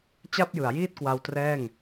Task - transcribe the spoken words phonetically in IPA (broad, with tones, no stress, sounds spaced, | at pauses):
t͡ɕ a˥˩ p̚ j ɯ˩˦ a̯ j iː˥˩ t̚ k w a˧ w t r ɛː˥˩ ŋ